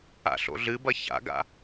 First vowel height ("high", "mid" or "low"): low